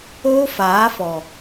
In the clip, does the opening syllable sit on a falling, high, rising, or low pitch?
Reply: high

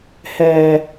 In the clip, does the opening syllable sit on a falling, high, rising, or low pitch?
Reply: low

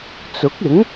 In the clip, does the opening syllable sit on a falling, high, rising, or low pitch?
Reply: rising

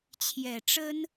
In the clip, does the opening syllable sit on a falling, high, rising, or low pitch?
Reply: low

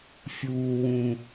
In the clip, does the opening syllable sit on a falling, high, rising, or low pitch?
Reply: low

